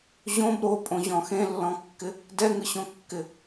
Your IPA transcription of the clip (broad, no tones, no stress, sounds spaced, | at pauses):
ʑ õ b ɾ o pʼ õ ʑ ɔ̃ x ẽ lː ɔ̃ kː ɪ | d ɛ ŋ ɯ ɕ õ kː ɪ